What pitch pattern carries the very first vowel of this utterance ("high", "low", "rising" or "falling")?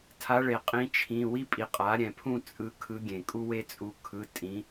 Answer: rising